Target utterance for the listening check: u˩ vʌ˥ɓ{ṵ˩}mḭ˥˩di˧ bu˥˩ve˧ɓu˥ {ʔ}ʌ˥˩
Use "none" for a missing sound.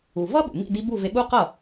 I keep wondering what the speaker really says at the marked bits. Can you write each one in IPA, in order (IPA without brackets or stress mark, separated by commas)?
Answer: ṵ˩, q